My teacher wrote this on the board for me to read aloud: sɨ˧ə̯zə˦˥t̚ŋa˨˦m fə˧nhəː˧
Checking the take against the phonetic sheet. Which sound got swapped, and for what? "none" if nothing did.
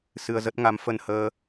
none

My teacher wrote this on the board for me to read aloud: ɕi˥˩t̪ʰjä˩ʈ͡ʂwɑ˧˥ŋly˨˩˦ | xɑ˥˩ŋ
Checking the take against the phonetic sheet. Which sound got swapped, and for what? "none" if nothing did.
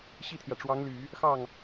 none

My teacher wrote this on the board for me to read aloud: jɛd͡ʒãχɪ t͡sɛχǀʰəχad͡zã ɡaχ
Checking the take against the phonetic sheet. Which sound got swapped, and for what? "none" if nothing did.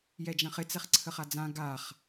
none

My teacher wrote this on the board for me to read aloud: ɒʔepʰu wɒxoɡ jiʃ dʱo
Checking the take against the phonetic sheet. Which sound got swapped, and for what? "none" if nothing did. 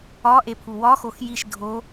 ɡ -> x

